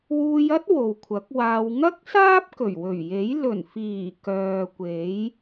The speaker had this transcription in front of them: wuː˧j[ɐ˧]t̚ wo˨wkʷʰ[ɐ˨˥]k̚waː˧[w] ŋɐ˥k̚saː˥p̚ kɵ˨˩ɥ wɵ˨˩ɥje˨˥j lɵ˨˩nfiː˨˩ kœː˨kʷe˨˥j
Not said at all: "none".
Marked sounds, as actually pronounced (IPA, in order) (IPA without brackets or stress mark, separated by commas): ɐ˥, ɐ˨˥, w